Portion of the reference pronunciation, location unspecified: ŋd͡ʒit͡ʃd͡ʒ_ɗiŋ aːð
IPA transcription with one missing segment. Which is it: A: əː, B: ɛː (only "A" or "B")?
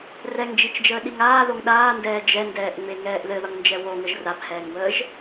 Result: A